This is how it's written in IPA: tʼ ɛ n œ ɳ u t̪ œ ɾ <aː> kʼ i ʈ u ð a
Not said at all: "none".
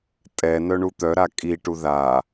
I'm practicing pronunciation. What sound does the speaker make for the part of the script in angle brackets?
a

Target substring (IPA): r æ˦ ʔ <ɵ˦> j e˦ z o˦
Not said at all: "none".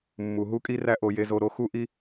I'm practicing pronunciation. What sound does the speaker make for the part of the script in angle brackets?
o˦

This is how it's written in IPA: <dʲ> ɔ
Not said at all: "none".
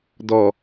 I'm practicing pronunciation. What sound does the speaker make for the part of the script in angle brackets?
d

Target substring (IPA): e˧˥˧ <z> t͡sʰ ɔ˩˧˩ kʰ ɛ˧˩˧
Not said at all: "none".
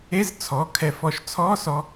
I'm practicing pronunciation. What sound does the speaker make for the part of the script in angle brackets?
z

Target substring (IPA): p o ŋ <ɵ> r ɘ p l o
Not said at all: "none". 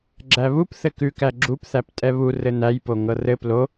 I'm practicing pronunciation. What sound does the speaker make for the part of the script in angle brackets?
ɤ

